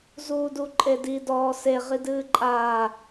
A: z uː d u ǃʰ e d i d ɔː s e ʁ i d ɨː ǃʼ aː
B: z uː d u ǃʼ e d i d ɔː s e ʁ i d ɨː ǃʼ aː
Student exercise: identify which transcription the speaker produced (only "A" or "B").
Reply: B